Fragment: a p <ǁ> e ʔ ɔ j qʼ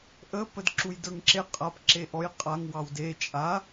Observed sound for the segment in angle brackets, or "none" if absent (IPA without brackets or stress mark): ǁ